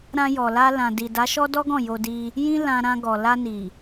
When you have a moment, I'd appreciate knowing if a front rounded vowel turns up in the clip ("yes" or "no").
no